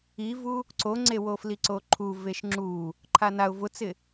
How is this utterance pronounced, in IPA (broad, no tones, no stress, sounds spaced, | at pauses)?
i v u | ǀ o ŋ͡ǀ e w o f l i ǀ o ǃʰ u v e ʃ ŋ͡ǁ u | ǃʰ a n a ʊ̯ v ʊ t͡s ɪ